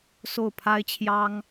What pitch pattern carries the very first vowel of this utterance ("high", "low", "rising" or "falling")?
falling